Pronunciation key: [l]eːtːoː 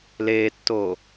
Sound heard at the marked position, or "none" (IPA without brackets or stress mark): l